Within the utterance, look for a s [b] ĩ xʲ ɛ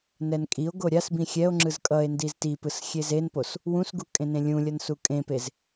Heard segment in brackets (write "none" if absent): b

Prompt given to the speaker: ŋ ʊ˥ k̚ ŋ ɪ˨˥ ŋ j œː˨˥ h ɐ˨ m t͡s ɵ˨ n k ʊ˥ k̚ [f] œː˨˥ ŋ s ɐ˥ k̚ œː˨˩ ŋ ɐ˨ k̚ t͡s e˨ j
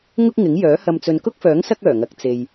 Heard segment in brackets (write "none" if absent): f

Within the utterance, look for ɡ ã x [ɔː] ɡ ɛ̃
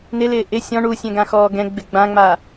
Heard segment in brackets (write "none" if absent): ɔː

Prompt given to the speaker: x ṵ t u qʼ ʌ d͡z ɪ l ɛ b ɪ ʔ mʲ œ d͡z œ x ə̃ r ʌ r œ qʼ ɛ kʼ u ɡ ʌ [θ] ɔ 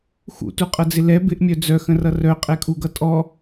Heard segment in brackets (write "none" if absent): tʼ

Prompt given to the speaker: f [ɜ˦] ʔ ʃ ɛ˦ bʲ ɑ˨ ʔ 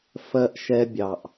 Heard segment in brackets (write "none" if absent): ɜ˦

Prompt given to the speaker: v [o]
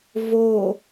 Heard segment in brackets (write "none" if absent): o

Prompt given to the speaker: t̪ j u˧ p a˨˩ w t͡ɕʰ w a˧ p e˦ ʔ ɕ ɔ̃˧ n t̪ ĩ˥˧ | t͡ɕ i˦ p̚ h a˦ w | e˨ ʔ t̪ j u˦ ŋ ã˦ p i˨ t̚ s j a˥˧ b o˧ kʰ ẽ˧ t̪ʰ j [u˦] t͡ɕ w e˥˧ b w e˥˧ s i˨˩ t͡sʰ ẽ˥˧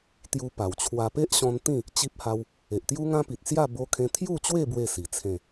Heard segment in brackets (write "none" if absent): u˥˧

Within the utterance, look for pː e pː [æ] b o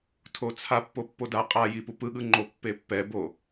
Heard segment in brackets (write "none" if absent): ɛ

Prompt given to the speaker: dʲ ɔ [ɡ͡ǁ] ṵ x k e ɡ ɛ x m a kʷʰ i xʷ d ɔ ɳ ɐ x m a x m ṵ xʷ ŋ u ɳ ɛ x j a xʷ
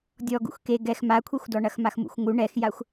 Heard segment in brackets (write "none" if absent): ɡ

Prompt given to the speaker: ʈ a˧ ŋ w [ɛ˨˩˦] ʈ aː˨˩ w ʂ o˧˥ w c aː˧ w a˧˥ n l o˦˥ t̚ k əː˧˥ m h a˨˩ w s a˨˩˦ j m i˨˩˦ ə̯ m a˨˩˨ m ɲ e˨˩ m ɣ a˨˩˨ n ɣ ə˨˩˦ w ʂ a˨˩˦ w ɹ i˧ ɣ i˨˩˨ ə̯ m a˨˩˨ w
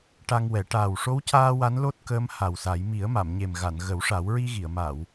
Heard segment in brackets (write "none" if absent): ɛ˨˩˦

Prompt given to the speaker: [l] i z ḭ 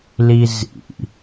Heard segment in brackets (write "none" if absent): l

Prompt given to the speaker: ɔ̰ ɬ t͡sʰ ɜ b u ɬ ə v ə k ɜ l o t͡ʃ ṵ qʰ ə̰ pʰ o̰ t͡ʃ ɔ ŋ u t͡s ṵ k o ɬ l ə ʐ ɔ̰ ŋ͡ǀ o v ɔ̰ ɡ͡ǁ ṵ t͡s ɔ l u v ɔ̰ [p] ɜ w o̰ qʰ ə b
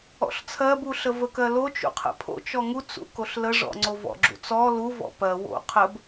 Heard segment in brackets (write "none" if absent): p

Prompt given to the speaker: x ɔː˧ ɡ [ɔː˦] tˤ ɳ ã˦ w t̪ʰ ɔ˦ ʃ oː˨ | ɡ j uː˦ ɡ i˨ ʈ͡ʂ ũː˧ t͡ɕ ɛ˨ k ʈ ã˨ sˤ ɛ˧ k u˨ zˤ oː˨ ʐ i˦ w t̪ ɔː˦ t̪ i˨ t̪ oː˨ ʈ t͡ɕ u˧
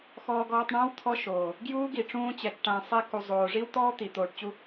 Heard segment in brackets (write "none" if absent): ɔː˧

